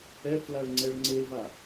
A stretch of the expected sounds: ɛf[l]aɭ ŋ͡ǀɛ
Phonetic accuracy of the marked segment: correct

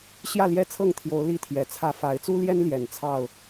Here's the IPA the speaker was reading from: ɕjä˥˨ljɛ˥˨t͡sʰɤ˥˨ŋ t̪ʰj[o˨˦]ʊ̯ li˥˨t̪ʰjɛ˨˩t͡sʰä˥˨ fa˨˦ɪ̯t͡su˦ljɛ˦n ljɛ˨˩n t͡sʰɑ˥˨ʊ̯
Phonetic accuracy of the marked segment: correct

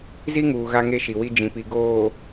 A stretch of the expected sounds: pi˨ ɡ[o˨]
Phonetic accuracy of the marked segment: incorrect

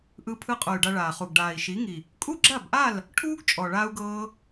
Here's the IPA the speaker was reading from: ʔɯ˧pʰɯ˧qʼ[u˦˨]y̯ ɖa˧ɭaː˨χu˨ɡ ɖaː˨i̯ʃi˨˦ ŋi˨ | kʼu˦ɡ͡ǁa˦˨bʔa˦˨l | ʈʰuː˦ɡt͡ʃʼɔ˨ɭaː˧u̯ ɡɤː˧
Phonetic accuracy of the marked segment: incorrect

